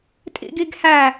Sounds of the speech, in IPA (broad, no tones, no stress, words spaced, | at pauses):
tʼḭɡiɡhæ